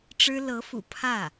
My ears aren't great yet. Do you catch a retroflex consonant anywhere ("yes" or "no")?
yes